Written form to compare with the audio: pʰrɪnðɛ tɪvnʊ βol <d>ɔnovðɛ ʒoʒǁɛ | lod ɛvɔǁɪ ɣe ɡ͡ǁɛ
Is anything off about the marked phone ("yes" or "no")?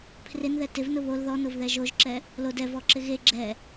yes